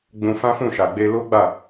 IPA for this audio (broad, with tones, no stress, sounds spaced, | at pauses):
ɡ͡b ũ˧ f ã˦ f ũ˦˨ ʃ a˨ ɡ͡b e˧ l o˦ ɡ͡b a˦˨